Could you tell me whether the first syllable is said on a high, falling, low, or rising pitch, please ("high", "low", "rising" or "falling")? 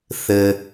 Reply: low